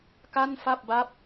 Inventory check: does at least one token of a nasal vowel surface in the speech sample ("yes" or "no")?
no